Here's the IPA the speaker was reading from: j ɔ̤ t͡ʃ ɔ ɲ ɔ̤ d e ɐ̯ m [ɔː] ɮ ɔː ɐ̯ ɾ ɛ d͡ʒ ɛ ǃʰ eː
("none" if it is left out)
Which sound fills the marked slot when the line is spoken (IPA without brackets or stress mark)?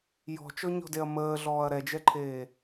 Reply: əː